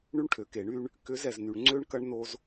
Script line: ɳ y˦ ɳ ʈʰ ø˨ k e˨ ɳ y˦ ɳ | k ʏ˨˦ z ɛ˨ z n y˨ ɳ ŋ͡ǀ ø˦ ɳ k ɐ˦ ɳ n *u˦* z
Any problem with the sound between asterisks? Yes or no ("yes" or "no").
yes